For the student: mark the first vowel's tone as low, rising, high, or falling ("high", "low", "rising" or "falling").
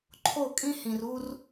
falling